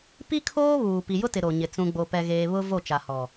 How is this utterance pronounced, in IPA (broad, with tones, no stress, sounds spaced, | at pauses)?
p i˦ kʰ oː˦ β uː˨ p i˨ j ʊ˦ t ɪ˨ ɾ o˨ ɲ ɪ˨ t͡s ũ˨ ɡ͡b o˨ p ɛ˨ ɣ eː˨ β ʊ˦ v o˦˨ t͡ʃ a˨ h ɔ˨